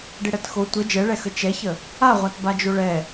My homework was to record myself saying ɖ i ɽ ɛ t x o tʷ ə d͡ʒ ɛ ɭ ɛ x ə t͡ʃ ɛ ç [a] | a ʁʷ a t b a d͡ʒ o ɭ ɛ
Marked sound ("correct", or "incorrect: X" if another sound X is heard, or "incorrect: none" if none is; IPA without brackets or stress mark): incorrect: ə